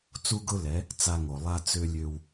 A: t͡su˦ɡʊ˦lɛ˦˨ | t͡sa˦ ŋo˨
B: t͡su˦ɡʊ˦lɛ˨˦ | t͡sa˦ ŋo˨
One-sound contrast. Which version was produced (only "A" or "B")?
B